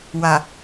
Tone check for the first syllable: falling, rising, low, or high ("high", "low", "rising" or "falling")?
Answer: low